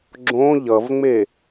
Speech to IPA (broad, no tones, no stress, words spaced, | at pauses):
ɡ͡ǁõ ʎʌvŋ͡me